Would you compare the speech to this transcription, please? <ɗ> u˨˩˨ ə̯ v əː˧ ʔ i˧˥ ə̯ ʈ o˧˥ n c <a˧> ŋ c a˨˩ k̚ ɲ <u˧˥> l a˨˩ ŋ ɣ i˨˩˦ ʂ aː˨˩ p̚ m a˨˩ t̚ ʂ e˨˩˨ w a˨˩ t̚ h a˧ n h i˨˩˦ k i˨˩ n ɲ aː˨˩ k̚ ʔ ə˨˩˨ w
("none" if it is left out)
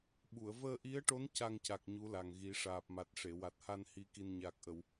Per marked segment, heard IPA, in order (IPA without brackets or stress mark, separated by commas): ɓ, a˧, u˧˥